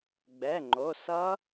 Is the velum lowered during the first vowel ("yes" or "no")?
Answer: no